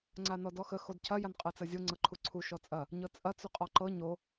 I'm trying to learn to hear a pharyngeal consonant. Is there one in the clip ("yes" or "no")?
no